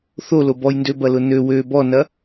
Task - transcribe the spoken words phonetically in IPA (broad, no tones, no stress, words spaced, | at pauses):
θolo bɔjndøbɐlʊ nø wø bɔnɐ